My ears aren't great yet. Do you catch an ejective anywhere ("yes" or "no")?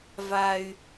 no